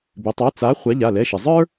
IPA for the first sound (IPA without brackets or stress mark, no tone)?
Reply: b